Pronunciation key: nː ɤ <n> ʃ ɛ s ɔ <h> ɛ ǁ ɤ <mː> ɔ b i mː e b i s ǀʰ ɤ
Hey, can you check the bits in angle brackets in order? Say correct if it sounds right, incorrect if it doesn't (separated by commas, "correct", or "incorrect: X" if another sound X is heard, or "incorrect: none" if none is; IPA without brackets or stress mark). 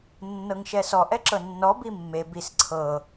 incorrect: ŋ, incorrect: ʔ, incorrect: nː